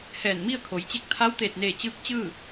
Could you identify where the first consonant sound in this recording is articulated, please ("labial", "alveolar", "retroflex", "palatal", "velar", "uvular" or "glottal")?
glottal